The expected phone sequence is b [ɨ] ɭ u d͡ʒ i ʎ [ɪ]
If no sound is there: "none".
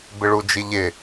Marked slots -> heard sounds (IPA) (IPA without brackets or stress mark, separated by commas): ɪ, ɪ